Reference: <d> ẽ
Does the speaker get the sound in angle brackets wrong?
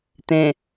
yes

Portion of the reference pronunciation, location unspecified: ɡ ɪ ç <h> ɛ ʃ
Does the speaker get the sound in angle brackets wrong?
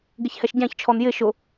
no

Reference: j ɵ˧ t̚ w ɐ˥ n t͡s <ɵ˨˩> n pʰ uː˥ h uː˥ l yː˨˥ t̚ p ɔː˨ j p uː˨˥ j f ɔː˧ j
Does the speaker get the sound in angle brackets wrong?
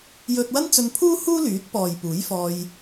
yes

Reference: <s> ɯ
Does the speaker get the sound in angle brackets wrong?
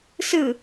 no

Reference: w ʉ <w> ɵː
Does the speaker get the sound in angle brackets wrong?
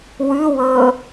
no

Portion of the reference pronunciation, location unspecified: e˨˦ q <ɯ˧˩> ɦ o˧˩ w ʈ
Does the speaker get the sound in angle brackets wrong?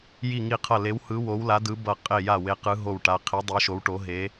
yes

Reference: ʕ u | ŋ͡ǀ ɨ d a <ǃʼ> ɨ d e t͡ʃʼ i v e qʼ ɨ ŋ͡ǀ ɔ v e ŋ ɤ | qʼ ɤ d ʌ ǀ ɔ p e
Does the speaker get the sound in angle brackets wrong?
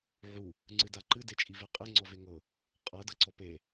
yes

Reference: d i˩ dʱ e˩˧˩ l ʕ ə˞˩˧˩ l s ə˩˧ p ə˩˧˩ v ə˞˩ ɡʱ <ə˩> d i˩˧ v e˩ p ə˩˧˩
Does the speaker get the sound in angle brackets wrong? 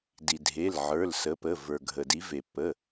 no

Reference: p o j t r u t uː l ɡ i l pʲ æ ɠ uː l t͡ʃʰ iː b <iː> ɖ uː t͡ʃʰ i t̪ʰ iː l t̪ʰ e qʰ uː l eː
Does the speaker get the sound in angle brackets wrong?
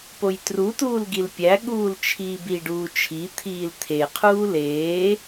yes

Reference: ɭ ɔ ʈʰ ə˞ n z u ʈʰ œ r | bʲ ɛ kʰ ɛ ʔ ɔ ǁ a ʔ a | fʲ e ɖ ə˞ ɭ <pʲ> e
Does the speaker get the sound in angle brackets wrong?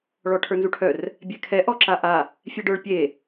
no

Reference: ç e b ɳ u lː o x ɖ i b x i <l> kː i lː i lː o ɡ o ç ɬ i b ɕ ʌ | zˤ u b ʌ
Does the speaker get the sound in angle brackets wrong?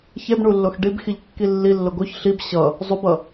yes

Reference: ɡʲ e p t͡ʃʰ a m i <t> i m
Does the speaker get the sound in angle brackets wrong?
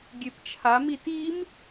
no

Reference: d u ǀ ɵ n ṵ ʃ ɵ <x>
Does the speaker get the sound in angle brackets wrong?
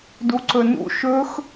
no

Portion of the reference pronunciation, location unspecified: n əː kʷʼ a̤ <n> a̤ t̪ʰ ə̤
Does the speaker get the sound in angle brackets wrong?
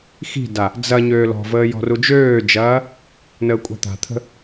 yes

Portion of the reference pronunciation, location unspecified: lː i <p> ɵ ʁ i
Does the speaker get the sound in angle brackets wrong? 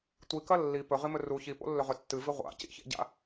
no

